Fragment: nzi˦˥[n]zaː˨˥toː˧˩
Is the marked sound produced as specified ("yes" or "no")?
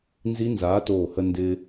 yes